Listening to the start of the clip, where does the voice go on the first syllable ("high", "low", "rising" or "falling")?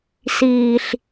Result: low